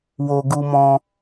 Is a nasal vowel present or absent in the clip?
present